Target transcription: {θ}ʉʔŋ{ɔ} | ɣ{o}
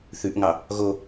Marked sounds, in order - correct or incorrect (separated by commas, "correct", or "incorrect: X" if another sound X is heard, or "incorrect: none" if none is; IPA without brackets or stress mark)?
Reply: correct, incorrect: ɑ, correct